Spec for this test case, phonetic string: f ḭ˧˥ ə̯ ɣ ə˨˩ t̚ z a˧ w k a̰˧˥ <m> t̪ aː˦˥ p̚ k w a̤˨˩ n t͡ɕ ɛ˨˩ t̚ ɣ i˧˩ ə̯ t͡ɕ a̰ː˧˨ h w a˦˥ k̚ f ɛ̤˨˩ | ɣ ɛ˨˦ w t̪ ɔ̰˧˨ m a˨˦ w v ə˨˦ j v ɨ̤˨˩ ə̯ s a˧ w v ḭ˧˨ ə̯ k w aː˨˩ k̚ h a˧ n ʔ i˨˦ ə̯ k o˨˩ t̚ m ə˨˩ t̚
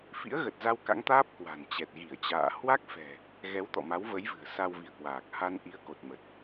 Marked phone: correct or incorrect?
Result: incorrect